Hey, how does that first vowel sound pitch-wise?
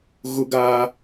low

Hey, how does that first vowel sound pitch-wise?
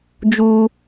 high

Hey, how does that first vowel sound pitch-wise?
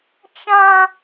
high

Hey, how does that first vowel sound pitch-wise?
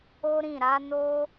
high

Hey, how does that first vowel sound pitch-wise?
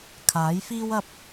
rising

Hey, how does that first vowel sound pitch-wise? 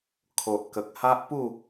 low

